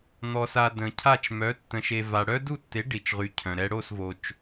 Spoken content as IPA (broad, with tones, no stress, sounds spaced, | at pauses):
n̪ ɔ˨ s a˨ d ə̃˨ cʰ a˥˨ t͡ʃ m œ˨˥ tː ə̃˨ ʃ e˨ v a˨ ɽ œ˦˥ d u˥˨ tː e˨˥ ɖ i˨ t͡ʃ ʁ y˨˥ cʰ œ̃˨ ɾ ɛ˦˥ ɽ o˥˨ s v o˨ t͡ʃ